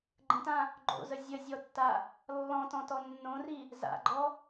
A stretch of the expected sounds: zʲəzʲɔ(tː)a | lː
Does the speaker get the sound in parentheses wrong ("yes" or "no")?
no